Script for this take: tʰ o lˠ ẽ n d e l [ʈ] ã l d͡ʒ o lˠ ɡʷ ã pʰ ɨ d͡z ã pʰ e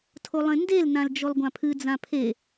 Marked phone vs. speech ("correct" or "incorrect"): incorrect